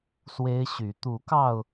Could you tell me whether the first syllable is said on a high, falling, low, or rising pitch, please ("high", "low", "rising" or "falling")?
high